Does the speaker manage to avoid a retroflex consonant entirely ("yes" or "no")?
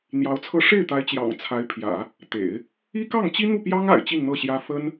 no